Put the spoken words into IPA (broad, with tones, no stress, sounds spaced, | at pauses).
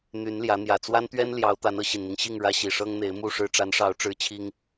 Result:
n̪ y˨˦ n l j ä˨˦ n̪ j ä˨˩ t͡s w a˦ n t̪ ɥ ɛ˦ n l j ɑ˨˦ ʊ̯ t̪ a˨˦ n ɤ˨˦ ɕ i˨˩ n n̪ i˦ ŋ ɕ i˥˨ ŋ ɻ ä˦ ɕ i˨˩ ʂ ɤ˦ ŋ n̪ e˨˦ ɪ̯ m u˥˨ ʂ ɻ̩˨˦ ʈ͡ʂ a˨˦ n ʂ ɑ˨˦ ʊ̯ ʈ͡ʂ ɻ̩˦ t͡ɕʰ i˦ ŋ